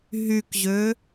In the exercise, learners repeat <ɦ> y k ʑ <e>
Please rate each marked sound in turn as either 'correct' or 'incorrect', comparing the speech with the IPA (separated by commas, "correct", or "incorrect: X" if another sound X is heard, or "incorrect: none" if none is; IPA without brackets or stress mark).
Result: correct, incorrect: ø